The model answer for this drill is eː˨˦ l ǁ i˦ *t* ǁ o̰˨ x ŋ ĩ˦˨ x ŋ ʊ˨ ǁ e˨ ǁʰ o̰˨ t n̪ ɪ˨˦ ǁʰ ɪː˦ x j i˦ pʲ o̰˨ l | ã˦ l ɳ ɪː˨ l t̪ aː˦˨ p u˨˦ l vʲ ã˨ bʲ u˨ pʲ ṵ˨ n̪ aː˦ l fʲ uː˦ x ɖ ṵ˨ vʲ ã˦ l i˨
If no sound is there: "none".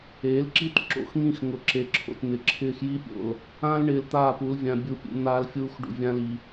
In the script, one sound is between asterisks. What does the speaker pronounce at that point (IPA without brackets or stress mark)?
t